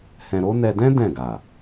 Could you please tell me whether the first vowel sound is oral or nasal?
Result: nasal